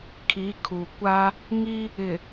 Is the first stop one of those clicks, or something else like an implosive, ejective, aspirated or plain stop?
aspirated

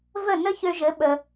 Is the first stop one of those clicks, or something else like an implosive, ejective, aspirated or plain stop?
implosive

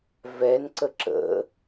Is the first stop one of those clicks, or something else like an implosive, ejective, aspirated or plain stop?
click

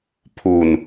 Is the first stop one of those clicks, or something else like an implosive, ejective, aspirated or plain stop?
aspirated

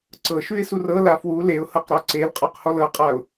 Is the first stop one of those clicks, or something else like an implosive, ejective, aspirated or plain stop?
click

